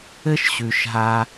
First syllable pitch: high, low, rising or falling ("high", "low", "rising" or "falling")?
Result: high